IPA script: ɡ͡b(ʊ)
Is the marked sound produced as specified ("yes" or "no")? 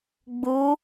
no